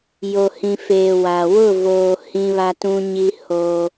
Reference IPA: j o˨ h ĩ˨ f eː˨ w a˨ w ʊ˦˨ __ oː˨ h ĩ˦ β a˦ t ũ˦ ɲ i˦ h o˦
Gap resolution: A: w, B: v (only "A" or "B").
B